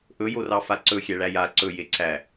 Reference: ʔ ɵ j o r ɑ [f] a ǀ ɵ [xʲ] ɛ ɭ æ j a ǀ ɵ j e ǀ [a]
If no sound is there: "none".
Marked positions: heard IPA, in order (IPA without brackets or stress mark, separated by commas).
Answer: f, xʲ, æ